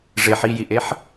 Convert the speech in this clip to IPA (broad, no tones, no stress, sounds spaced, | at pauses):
ʐ e ħ i j i ʔ e ħ